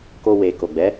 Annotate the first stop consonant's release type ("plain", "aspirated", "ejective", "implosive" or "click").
plain